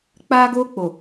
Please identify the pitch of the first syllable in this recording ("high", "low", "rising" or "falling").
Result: high